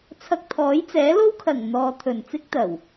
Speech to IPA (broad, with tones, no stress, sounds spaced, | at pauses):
t͡sʰ ɐ˧ k̚ t̪ʰ ɔː˨˥ j t͡s ɛː˨˥ l o˥ w kʰ ɐ˨˩ ŋ n̪ ɔː˨ t̪ʰ ɵ˨˩ n t͡s ɪ˥ k̚ t̪ ɐ˨˩ w